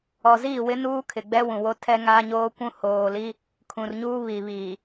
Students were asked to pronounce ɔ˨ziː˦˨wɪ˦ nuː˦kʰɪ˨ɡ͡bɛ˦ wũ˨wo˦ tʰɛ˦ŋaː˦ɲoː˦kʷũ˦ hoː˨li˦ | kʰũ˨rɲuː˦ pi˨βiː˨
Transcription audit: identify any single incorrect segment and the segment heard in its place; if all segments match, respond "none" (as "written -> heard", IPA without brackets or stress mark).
p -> β